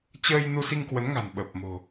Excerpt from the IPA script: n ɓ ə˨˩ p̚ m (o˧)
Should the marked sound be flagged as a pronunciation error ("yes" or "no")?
yes